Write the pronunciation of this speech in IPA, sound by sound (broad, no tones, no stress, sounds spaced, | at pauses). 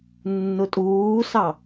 nː ʊ tʼ uː s ɑ